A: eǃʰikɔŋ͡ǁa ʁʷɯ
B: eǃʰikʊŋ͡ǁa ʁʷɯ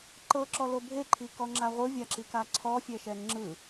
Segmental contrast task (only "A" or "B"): A